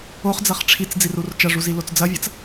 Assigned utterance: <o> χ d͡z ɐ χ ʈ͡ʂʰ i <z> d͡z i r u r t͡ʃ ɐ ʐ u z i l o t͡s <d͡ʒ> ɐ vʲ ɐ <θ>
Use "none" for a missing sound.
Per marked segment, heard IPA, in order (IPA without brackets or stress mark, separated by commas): o, t͡s, d͡z, t͡s